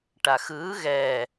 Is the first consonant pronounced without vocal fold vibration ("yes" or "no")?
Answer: yes